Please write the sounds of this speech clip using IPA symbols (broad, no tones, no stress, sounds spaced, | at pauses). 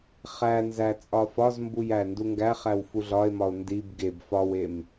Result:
χ æ n z æ t͡sʼ ɒ f ɒ z m b u j æ n d u ŋ ɡ æ χ æ w f u ɮ ɒ e̯ m ɒ o̯ n d i b ɡ e b f ɒ w e m